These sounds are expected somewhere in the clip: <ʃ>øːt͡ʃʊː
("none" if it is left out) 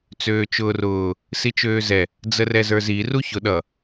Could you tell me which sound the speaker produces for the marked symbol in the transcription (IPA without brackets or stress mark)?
t͡s